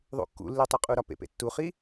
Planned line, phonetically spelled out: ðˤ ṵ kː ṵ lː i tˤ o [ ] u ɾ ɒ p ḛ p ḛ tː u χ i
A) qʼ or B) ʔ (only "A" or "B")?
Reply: A